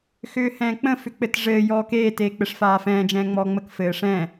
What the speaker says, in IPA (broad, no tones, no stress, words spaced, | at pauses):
xʏːhɛ̃ːk͡pə̃ fʏk͡pɘtʐɘː jɔːkeː teːk͡pɘʂfaːfɛ̃ː d͡ʒɛ̃ːŋ͡mɔːŋ͡mək fɘːʂɛ̃